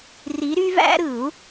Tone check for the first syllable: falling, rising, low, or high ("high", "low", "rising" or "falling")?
rising